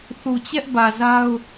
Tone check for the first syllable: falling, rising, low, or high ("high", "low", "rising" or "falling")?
low